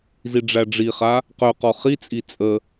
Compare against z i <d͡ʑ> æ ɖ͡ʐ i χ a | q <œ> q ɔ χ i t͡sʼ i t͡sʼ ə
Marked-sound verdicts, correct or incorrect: incorrect: ɖ͡ʐ, correct

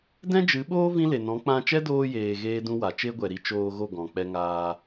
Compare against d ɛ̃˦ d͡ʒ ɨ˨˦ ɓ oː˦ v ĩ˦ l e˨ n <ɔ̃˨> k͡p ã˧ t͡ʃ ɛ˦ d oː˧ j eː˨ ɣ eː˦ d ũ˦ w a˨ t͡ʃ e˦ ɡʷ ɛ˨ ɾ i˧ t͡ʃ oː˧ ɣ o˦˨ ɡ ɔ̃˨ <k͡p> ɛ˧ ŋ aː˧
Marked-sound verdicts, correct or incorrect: incorrect: ɔ̃˨˦, correct

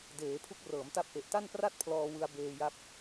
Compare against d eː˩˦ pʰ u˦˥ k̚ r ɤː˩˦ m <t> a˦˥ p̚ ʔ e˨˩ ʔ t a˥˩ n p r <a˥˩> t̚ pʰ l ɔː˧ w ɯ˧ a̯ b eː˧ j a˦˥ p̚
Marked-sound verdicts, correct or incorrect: correct, correct

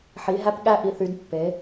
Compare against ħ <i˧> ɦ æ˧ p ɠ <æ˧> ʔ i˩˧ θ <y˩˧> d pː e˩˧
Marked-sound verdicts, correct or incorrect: incorrect: i˩˧, correct, correct

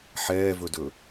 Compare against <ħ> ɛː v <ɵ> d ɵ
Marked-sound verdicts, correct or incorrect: correct, correct

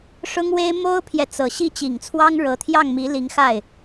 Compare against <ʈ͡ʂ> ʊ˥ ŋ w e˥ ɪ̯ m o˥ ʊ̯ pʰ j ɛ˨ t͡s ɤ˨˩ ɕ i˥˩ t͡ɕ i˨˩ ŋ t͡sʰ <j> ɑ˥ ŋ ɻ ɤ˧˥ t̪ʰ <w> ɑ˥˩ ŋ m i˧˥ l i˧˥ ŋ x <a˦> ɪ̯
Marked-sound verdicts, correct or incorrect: incorrect: ʂ, incorrect: w, incorrect: j, incorrect: a˥˩

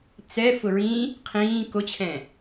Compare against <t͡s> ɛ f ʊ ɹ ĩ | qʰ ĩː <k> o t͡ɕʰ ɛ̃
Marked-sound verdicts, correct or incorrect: correct, correct

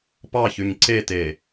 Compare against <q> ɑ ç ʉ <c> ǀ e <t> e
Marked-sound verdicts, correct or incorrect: incorrect: p, incorrect: ɲ, correct

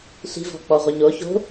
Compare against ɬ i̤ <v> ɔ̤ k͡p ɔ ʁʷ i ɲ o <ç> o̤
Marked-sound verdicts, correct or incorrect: correct, correct

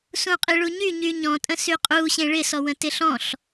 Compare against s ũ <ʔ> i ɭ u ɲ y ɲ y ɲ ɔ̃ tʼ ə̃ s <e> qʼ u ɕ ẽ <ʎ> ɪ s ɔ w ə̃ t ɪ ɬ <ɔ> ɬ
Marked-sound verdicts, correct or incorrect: incorrect: qʼ, incorrect: y, incorrect: ɭ, incorrect: ɔ̃

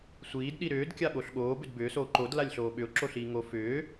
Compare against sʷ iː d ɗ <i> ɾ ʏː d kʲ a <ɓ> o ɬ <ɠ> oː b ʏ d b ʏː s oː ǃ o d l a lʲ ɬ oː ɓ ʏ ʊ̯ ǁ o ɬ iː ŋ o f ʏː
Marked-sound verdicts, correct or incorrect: correct, correct, correct

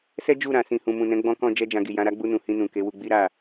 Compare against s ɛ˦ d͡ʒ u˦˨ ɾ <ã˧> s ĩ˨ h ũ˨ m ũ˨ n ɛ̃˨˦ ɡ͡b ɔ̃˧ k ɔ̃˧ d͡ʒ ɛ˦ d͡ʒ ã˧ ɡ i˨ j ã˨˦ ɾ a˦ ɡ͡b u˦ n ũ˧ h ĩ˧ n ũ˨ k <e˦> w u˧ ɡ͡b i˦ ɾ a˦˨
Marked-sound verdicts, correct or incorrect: incorrect: ã˨, incorrect: e˨˦

